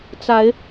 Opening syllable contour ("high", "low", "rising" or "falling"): rising